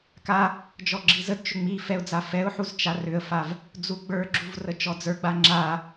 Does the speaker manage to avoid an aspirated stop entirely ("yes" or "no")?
yes